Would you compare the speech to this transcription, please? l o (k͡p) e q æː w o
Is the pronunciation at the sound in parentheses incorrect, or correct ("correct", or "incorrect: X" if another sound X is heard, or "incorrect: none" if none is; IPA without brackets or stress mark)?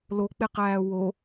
correct